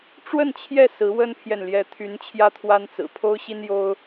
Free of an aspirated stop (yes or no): no